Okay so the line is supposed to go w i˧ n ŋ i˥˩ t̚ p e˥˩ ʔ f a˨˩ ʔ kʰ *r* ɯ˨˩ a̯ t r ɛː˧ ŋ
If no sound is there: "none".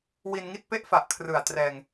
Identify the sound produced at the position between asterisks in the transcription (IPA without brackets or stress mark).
r